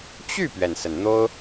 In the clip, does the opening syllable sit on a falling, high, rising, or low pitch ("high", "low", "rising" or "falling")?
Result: falling